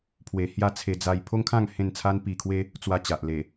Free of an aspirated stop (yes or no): no